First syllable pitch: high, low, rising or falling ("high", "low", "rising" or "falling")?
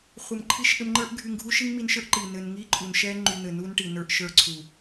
low